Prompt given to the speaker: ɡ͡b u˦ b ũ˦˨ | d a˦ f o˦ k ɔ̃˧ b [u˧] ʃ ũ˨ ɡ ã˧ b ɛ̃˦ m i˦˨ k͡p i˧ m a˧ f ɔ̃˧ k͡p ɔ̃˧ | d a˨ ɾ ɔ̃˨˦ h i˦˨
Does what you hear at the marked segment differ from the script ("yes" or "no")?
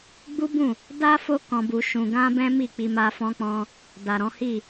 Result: no